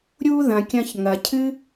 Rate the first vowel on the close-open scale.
close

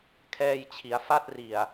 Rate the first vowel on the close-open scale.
mid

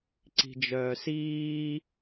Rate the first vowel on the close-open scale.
close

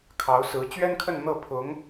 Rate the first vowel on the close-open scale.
open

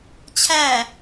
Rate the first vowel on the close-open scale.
open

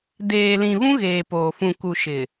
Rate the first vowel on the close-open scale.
mid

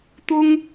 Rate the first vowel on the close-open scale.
close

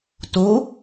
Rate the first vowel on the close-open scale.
mid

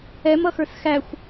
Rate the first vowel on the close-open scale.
mid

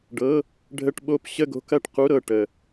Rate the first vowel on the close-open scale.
mid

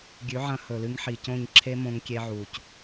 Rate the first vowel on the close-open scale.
close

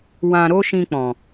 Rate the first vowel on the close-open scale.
open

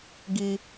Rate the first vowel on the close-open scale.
close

